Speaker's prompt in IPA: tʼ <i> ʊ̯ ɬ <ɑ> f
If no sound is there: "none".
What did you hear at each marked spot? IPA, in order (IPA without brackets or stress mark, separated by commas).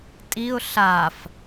i, a